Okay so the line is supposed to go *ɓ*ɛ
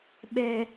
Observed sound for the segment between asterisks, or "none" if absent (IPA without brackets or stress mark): ɓ